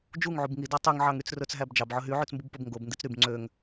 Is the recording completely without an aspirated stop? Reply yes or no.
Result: yes